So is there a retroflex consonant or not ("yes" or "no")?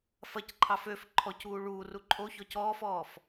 yes